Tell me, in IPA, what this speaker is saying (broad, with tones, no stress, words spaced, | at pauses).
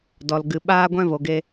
dɔ˨l ɡɨ˨ɓaː˧ɡʷɛ̃˧ vo˨ɡe˧